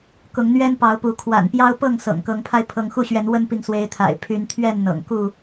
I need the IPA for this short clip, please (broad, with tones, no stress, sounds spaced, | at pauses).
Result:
k ʊ˨˦ ŋ n̪ ɥ ɛ˦ n p ɑ˨˦ ʊ̯ p u˨˦ kʰ w a̰˨˩ n p j ɑ˦ ʊ̯ p ɤ˥˨ ŋ s ɤ̰˨˩ ŋ k ɤ˨˦ ŋ pʰ a˧ ɪ̯ pʰ ɤ˨˦ ŋ x u˥˨ ɕ ɥ ɛ˨˦ n w ə˦ n p i˨ ŋ s w e˨˦ ɪ̯ t̪ʰ a̰˨˩ ɪ̯ pʰ y˨˦ n t̪ʰ ɥ ɛ˥˨ n n̪ ɤ̰˨˩ ŋ k u˥˨